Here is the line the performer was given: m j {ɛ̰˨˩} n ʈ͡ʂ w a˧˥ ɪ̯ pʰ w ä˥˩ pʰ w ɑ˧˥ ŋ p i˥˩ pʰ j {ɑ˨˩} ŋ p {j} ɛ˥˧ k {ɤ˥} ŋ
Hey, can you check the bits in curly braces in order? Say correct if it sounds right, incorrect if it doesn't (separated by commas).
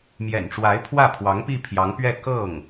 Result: correct, incorrect, incorrect, incorrect